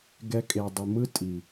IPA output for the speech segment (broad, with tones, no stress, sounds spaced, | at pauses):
ɡ ɛ˧ kʼ e˨ dˤ ɯ˨ m ɯ˦ tʼ i˨